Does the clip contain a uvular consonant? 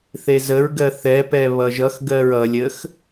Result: no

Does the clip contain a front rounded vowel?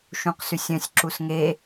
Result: yes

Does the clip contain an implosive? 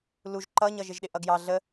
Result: yes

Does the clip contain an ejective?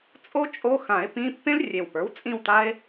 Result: yes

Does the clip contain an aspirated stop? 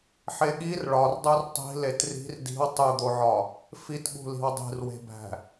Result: no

